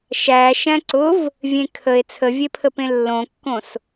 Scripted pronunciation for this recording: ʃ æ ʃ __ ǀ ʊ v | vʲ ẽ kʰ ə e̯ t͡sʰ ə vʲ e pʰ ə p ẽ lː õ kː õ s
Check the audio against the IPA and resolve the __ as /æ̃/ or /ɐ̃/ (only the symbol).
æ̃